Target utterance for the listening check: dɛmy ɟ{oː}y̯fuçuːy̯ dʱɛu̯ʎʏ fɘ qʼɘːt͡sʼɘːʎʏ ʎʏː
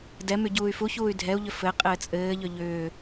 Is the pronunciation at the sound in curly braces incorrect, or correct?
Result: incorrect